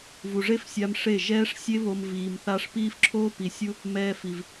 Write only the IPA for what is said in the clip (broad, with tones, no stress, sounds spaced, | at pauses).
v u˨ ʐ e˦ f sʲ a˧ m ʂ e˦˨ ʒ ɛː˦ ʂ sʲ e˦ β o˧ m v iː˨ m θ a˦ ʂ p iː˦ f ǁʰ oː˦ p i˨ sʲ u˦ | m ɛː˧ f i˨ v